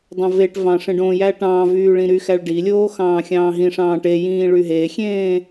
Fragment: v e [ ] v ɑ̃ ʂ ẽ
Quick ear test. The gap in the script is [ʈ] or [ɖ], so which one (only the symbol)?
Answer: ʈ